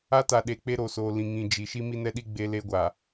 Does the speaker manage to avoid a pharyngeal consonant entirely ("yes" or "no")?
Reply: yes